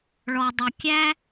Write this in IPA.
ɭ ɔ˧ dˤ ʌ˧ kʲ æ˥

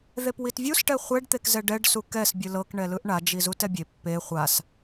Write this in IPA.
ð e p w i t vʲ u s ʈ ɛ χʷ ɛ ɖ t̪ e k z ɛ ɖ ɛ ɖ s u k ɛ s bʲ ɯ l ɤ k ɳ ɛ l ɯ ʔ ɳ a d͡ʒ i z u t ɛ bʲ e pː e χʷ a s

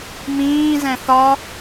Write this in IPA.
m ĩː z ɛ̃ θ ɒ

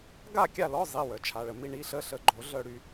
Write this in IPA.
ɡ a˥˨ kʲ a˥˨ l ɔ˧˥˧ zˤ i˩˧˩ w œ˨˩˦ t͡ʃʰ a˩˧˩ ɭ ə˧ m i˥˨ ɳ i˧˥˧ ɬ ə˧˥˧ ɬ ə˨˥ ɡ͡ǃ o˨˩˦ ɮ œ˥˨ ɽ y˧

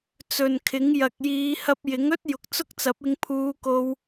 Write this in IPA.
t͡s ɵ˨ n kʰ ɪ˨˥ ŋ j ɐ˨ k̚ j iː˨˧ h ɐ˧ p̚ j ɪ˨˥ ŋ ɵ˥ t̚ j ʊ˨ k̚ t͡s ʊ˥ k̚ t͡s ɐ˨˥ p̚ ɪ˧ ŋ pʰ uː˧ k o˧ w

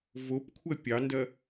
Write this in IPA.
v o p kʷʰ ɐ pʲ ɑ n d ɐ

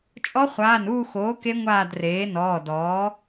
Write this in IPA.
t͡ʃʼ ɔ˦˥ χʷ aː˩˧˩ n uː˦˨ x oː˩˥ k e˦˥ ŋʷ aː˦˨ d r eː˩˥ n ɔː˩˧˩ d ɔː˩˥

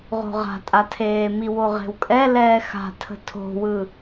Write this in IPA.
ʁ o̤ ʁ a̤ tʼ a tʰ eː m i w o ʁ e̤ w kʼ ɛ l ɛː x a̤ tʰ ə̤ tʰ o̤ w ɯ

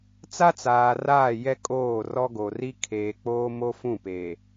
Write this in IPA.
t͡s a˦ t͡s aː˨ r aː˦˨ j ɛ˦ kʼ oː˦˨ r ɔ˦ ɡ o˨ r i˦ kʰ eː˨ k͡p oː˦ m o˦ f ũ˦˨ p eː˨

